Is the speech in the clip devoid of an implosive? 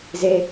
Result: yes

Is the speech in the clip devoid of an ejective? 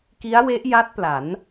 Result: yes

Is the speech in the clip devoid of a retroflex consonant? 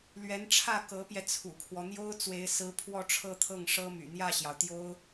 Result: no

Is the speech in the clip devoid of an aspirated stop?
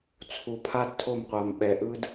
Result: no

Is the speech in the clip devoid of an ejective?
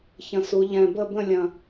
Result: yes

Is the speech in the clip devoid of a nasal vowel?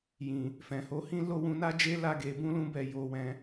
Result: no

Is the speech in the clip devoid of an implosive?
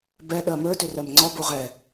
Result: no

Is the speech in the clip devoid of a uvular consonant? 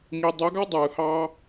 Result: yes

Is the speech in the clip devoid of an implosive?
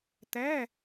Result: yes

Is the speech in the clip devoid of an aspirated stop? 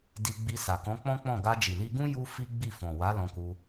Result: yes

